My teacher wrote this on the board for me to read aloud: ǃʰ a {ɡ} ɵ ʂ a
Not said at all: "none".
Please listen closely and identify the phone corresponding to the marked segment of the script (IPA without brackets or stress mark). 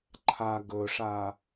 ɡ